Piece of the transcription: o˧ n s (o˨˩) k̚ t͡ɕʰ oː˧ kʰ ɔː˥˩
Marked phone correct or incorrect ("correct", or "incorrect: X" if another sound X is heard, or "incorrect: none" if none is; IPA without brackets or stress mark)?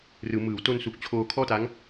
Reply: incorrect: u˨˩